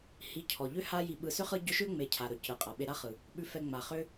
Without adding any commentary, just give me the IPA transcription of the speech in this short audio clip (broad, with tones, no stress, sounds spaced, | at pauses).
h i˨ cʰ ɔ˩ ʎ ʏ˥ h a˦ j i˨ ɓ ɯ˨ s ʏ˥ χ ɯ˦ ɟ ʏ˦ ʃ ʏ˥ ŋ͡m e˨ cʰ a˩ ɾ ɵ˩ c ɯ˩ qʼ a˩ ɓ e˨ ɾ a˦ χ ɯ˩ | ɓ ʉ˨ f ɛ˨ ŋ͡m a˩ χ ʏ˦